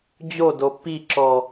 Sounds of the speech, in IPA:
d͡ʑodo piǁɔ

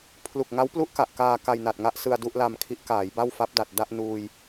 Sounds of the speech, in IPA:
pʰlu˨˩k̚ŋa˦˥wplu˦˥ʔ ka˨˩ʔkaː˧ ka˧jna˨˩t̚ŋa˥˩ʔsɯ˧a̯ du˥˩ʔla˧mkʰi˦˥ʔkaː˩˦j ba˥˩wfa˦˥p̚da˨˩t̚ da˥˩ʔnuː˧j

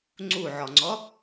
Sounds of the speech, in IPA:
ŋ͡ǀuʕɔŋ͡ǀɔ

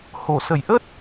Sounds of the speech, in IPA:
ho˧˩sə˧˩j ʔə˦˥t̚

